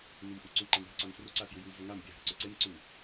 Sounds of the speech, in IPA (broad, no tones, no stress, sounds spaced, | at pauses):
n u m ʔ u ǀ u ǃ a m ɦ ə ǀ a m f r u ǀ a t j u j u v ɵ ŋ a m bʲ a ɦ ə ǀ ɵ ǀ e m ǀ u